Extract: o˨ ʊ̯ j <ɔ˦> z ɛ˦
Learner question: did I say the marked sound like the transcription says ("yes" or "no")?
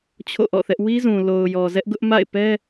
no